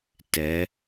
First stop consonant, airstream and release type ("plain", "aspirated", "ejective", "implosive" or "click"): plain